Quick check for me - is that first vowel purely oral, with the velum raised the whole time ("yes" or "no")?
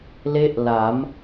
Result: yes